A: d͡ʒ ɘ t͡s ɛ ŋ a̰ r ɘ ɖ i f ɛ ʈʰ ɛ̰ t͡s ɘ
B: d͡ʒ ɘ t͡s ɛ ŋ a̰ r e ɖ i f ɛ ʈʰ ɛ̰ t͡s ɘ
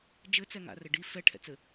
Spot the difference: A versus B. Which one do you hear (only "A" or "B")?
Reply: A